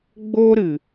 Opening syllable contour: high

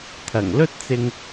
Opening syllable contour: low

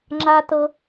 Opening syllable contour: low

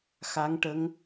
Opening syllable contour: rising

